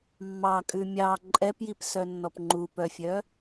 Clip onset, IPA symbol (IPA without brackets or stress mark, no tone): mː